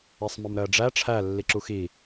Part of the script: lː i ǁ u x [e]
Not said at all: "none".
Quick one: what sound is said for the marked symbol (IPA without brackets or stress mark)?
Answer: i